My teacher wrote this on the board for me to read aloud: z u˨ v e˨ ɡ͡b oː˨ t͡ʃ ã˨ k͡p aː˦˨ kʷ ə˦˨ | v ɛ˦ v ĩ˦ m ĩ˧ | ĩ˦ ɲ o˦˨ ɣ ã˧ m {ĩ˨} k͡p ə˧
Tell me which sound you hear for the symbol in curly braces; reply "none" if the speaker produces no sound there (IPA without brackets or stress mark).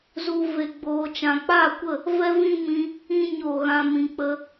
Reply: ĩ˨